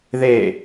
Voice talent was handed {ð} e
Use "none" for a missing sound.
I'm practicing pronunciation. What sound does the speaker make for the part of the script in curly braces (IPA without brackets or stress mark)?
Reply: ð